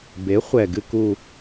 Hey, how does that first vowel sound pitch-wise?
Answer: rising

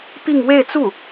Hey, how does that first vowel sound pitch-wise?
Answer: falling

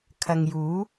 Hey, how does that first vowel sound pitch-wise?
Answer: low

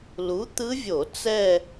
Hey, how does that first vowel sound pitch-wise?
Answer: rising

